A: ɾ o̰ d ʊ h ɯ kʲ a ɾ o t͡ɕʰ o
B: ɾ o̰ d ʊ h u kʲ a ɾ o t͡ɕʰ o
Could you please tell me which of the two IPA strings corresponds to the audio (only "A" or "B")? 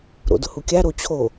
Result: B